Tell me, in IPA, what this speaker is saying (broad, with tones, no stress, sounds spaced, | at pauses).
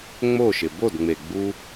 ŋ͡m o˦˨ ʃ ɪ˨ b o˦˨ d ŋ͡m e˨ ɡ͡b u˧